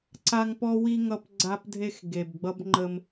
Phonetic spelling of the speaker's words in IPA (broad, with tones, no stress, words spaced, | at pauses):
ǀa˦ŋpɔ˦wi˦ ŋʌ˦pɡ͡ǀa˦pdʱe˦x ɡe˨bɡ͡bʌ˦b ŋ͡ǃə˦m